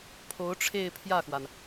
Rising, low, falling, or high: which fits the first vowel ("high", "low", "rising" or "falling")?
rising